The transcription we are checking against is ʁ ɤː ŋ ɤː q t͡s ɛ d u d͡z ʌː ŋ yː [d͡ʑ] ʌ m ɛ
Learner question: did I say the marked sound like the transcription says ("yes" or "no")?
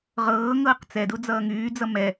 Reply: no